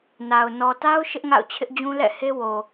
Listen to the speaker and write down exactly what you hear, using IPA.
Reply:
n a˨ ʊ̯ n ɔ˨ t a˦ ʊ̯ ʃ ɪ˦ ʔ ŋ a̰˦˨ ʊ̯ t͡ɕʰ ɪ˦ ʔ d͡ʑ ũ˦ l ɛ̰˦˨ h e˦ w o˨

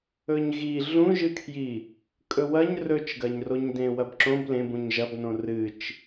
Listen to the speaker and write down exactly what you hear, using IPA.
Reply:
ɵ ɲ ɣ i ɮ ũ ʒ ɨ kʰ j i | kʼ ɵ w ɐ ɲ r ɵ t͡ʃ ɡ ɐ ɲ r o ɲ d ẽ w ɐ b ǁ õ b l ẽ b ũ ɲ ʒ ɐ b n õ r ɨ t͡ʃ

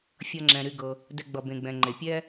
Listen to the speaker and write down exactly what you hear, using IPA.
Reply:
fʲ ʌ˨ ŋ͡ǁ ɛ̃˩ ɾ y˨ ɡ ɤ˩ | d ɛ˨ ɡ͡b ʌ˩ b ẽ˩ ɡ͡b ɛ̃˩ ŋ͡ǃ e˩ pʲ ɛ˥

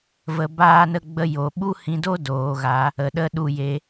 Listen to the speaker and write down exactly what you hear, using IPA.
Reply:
v ə˧ b aː˦ n ə˦ ɡ͡b ə˦ j o˧ ɓ u˦ h ĩ˧ d o˦ d oː˨ ɣ a˨˦ | ə˨ ɗ ə˦ ɗ u˦˨ j e˧

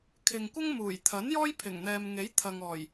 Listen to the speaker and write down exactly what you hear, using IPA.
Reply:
kʰ ɪ˨ ŋ kʷ ɐ˥ ŋ m uː˨˩ j t̪ʰ ɐ˨˥ n j ɔː˥ j pʰ ɪ˨˩ ŋ n̪ ɛː˨ m ŋ e˨˥ j t̪ʰ ɐ˨ ŋ ɔː˨˩ j

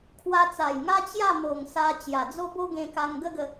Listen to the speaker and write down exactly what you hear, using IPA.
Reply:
kʰ w a˧ t͡s a˨˩ j ŋ a˦ t͡ɕ j a˥˧ m o˨˩ ŋ s a˧ t͡ɕ j a˨˩ d͡z o˦ b o˦ ɡ ẽ˧ k a˧ ŋ ɡ ə˦ ɡ ə˧

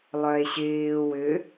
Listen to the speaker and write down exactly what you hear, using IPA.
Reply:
lˠ œ e̯ ɕ ɪː w ʏ

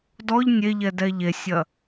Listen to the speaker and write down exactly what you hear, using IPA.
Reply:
d ɔ ʎ nʲ e ʎ ɛ d ɛ ʎ e sʲ ɐ

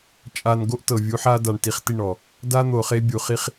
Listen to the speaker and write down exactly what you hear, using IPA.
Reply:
t͡ʃʼ a˨ n ɡ o˦ ʔ t ɤ˨ vʲ u˨˦ ħ a˦ d a˨ ɳ t i˨ χ t i˦˨ ɳ ɔ˨ | d a˦ n̪ o˨ χ e˦ bʲ u˨ χ i˦ χ

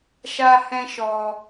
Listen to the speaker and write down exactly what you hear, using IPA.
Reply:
ʃ a˦ h ɛ̃˦ ʃ ɔ˧

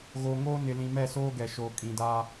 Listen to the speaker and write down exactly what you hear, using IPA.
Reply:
ɣ oː˨ ŋ oː˦ n ɪ˨ l ĩ˨ m ɛ˦˨ s oː˦ ɡ ɛ˨ ʃ oː˨ kʼ ĩ˨ d aː˦

